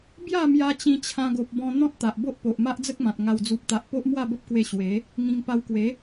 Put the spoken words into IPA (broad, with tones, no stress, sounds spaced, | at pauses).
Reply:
b j a˥˧ m j a˧ t͡ɕ ĩ˧ t͡ɕʰ ã˧ ɡ o˨ p̚ b ɔ̃˧ n̪ ɔ̃˦ t̚ t̪ a˨ ʔ b o˦ ʔ p o˨ ʔ m a˦ ʔ d͡z ə˦ k̚ m ã˨ t̚ ŋ a˨˩ w d͡z u˨ p̚ t̪ a˨ ʔ p o˦ ʔ m w a˥˧ b ə˦ p̚ k w e˧ ɕ w e˨˦ | ŋ ĩ˧ ŋ p a˧ w k w e˨˦